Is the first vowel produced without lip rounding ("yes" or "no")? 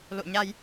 no